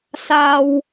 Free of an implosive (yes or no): yes